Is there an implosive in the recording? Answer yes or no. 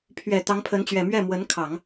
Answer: no